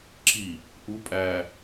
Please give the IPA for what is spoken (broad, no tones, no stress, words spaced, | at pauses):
ǁi | ʔu pʼæ